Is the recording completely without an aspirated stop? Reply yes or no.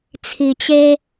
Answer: no